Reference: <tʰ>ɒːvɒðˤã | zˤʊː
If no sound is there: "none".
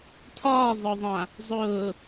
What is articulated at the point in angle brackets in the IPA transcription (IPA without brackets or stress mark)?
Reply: tʰ